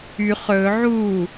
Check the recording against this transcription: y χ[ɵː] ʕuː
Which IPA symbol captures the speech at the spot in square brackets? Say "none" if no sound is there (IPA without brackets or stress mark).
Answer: ɵː